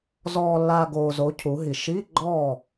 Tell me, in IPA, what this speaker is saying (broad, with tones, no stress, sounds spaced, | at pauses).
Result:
z ɔː˨ lː a˨ ɡ oː˨ z o˨˥ cʰ u˨˥ ɦ i˨ ʃ iː˧˥˧ ɡ͡ǃ ɔː˥˨